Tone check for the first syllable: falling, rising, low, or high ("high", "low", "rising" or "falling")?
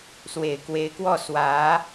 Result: low